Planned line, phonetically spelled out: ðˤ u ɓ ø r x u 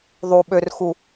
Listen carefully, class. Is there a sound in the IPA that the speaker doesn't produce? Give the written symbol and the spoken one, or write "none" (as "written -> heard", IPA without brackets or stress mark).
none